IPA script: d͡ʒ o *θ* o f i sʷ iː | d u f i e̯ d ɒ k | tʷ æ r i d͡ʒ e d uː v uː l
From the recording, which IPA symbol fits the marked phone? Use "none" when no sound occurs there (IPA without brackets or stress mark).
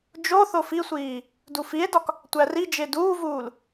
θ